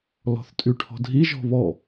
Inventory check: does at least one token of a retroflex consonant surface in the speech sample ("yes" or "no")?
yes